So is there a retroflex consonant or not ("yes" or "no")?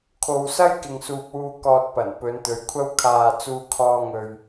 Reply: no